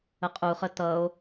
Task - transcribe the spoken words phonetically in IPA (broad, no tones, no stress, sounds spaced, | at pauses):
ə qʼ u χ ə t̪ ʌ o̯